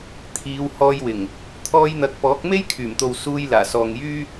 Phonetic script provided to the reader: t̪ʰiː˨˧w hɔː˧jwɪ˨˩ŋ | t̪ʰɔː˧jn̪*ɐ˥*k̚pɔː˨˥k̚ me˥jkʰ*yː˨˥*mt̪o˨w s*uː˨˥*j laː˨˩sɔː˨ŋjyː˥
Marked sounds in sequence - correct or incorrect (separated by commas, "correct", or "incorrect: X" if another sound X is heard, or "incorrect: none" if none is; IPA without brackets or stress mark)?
incorrect: ɐ˨, incorrect: yː˨˩, incorrect: uː˧